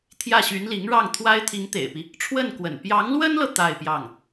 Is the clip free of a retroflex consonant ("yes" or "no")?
no